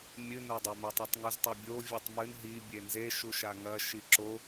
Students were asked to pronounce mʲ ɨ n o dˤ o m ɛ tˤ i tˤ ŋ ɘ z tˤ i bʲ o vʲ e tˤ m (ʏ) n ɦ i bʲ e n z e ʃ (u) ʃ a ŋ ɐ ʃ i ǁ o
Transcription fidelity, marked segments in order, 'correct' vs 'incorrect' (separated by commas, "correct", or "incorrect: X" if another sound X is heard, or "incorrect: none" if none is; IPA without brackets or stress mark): incorrect: ɨ, correct